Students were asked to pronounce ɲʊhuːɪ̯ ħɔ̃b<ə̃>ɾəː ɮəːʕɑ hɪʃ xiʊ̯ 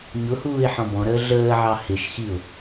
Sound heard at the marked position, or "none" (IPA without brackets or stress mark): ɔ̃